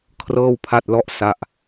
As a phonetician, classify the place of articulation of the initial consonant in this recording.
velar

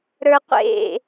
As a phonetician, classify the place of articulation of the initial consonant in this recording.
alveolar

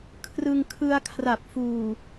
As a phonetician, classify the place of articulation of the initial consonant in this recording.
velar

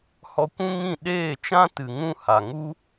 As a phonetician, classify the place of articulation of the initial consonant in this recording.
glottal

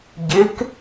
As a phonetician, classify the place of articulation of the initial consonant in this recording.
palatal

